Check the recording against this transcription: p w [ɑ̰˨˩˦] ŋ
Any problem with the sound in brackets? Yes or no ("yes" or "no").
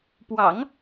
no